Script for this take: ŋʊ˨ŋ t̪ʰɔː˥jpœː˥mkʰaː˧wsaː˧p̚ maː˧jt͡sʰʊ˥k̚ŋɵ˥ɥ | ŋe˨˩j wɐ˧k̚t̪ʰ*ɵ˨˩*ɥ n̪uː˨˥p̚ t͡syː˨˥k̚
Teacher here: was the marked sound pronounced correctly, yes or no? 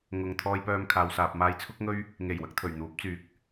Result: yes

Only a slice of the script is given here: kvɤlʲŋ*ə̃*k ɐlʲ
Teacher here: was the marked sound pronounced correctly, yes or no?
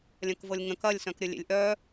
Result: yes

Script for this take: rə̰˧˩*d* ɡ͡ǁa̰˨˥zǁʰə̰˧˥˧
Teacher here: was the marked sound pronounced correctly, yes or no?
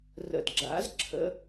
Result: yes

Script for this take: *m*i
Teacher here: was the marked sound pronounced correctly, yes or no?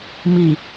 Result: yes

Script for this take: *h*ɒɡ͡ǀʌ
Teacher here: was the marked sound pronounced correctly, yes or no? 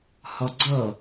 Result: yes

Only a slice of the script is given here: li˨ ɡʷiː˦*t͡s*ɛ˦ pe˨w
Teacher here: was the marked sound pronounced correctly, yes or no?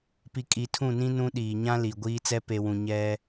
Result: yes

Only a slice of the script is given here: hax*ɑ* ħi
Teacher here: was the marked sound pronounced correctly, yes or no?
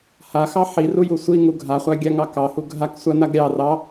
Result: yes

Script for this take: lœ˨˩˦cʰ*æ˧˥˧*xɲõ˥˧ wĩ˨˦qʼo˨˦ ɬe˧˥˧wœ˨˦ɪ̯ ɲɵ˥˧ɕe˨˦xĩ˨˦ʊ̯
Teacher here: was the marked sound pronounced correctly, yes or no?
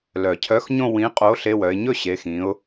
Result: no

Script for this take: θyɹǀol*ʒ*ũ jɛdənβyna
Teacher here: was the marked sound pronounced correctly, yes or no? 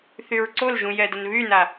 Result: yes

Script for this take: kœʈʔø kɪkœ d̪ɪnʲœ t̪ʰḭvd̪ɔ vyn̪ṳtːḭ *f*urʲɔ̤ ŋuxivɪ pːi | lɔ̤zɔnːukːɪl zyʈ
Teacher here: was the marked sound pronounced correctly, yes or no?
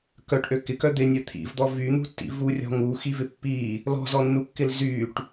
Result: no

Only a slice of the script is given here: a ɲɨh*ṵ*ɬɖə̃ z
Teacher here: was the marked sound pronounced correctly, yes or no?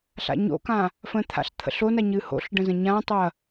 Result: no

